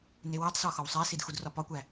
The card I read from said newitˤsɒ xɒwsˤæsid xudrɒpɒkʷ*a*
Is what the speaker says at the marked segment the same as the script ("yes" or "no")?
no